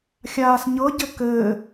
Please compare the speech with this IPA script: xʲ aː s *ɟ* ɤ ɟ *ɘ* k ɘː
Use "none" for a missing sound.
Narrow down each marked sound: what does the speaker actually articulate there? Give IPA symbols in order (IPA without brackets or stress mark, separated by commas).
ɲ, ɘ